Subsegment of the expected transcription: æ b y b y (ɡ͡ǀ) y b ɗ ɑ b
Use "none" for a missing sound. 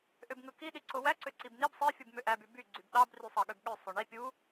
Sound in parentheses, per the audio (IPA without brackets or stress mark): ɡ͡ǀ